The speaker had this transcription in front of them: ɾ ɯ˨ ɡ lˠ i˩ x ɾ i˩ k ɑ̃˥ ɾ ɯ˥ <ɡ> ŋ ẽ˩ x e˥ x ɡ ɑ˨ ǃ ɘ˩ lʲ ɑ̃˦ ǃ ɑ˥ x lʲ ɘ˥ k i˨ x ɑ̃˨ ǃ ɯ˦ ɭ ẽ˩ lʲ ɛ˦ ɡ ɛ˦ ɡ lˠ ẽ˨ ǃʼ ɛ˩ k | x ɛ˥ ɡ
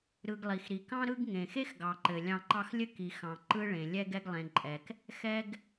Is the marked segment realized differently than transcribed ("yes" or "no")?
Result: no